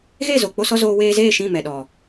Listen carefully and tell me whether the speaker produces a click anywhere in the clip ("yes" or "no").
no